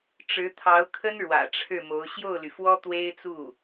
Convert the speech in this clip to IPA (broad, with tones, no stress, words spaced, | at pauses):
ʈ͡ʂɻ̩˧˥t̪ʰɑ˧˥ʊ̯kʰə˥n ɻwä̰˨˩ʈ͡ʂʰɻ̩˥˩mo˧˥ʊ̯ ɕjo˥˩ʊ̯ly˩fwɔ˥ t̪we˥ɪ̯t͡su˥˩